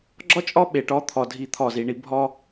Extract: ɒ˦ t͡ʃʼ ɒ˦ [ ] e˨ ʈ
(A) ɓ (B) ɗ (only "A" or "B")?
A